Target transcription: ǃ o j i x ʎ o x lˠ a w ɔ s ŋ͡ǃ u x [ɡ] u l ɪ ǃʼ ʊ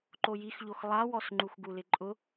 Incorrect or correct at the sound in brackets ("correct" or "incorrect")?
correct